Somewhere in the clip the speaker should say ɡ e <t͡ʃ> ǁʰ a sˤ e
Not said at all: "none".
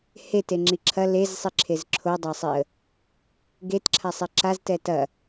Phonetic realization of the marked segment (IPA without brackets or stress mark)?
t